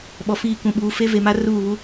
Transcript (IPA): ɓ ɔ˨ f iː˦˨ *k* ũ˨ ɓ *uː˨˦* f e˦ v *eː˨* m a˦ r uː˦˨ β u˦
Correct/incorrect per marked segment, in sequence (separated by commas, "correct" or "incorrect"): correct, correct, incorrect